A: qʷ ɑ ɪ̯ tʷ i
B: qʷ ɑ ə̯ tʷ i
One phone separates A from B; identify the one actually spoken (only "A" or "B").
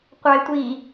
A